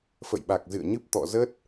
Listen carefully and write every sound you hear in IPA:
f ə̰˧˨ j ɓ a˨˩ k̚ z ɨ̰˧˨ ə̯ ɲ ɨ˦˥ p̚ t̪ ɔ̰˧˨ z ə˦˥ t̚

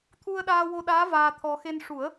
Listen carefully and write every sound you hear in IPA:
t̪ʰ u˧ ə̯ ɗ aː˧ w o˧ ɗ aː˧˥ v aː˧ t̪ʰ ɔ˧ x e˧ n ʂ u˨˩˦ ə̯

